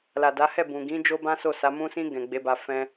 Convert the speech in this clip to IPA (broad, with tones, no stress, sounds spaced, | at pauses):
l a˨ d a˨˦ h ɛ˦˨ b ũ˨ ɡ ĩ˨˦ d͡ʒ o˦ b ã˦ s o˦˨ s a˨˦ m ũ˧ s ĩ˧ ɡ ɛ̃˨ ɡ͡b e˨˦ b a˧ f ɛ̃˧